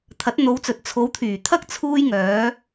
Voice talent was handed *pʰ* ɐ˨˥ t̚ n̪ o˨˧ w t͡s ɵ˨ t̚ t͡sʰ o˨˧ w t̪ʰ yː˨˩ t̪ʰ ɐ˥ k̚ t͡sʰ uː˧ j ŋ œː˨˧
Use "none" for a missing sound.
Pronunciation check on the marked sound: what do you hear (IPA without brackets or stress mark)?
t̪ʰ